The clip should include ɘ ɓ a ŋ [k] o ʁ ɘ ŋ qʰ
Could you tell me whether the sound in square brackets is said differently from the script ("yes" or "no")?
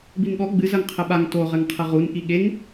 yes